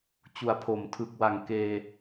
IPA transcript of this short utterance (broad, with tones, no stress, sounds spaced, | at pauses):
t͡ɕ u˨˩ a̯ pʰ o˩˦ m tʰ ɯ˨˩ k̚ w a˨˩ ŋ k eː˧